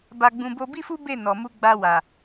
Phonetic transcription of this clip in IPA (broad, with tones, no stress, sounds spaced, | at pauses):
b a˧ ɡ͡b ũ˧ b o˦ b i˦ f u˦ b e˦˨ n ɔ˨ m u˧ ɡ͡b a˧ w a˨